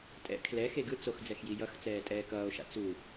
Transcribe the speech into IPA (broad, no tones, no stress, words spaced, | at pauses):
tʼɛ̰ kʰlɛ xeɡɯ t͡sox d͡zɛxjijʌxt͡sɛː tʼɛːkʌːo̯ʃa̰ t͡su